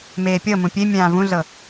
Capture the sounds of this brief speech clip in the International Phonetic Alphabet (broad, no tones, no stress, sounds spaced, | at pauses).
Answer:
m eː pʲ ɤ m ũ pʲ e mʲ ãː v ũ ɮ ɤ